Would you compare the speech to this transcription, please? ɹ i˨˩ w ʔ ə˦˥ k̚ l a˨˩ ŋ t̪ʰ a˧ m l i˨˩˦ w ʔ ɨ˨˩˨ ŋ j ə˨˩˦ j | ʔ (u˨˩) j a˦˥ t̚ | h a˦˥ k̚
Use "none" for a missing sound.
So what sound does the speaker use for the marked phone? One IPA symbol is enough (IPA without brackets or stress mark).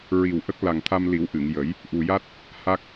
u˨˩